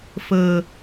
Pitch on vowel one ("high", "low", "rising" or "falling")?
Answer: low